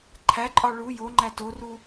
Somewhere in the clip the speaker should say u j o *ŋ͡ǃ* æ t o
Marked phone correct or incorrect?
correct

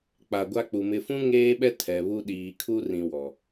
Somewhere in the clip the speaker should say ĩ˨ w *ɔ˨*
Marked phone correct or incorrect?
correct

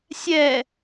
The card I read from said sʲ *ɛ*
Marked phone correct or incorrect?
correct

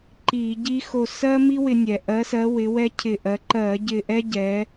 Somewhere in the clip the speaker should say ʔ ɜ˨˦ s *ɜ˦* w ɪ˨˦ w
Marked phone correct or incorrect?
incorrect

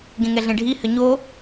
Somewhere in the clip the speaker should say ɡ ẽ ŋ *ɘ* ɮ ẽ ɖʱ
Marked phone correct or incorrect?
incorrect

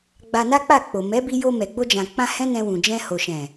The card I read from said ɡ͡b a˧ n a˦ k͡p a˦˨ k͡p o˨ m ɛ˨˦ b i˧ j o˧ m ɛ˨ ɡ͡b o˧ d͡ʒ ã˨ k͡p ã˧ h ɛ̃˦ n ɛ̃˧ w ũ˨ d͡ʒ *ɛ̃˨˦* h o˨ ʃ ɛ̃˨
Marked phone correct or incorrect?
incorrect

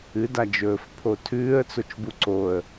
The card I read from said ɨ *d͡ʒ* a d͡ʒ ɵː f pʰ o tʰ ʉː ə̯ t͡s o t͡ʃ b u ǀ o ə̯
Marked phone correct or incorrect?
incorrect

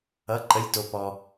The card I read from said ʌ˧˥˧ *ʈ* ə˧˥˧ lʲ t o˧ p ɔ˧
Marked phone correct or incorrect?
incorrect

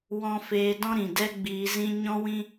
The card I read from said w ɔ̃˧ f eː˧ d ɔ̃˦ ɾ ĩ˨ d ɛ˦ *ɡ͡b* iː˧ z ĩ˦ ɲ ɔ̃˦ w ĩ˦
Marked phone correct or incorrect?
correct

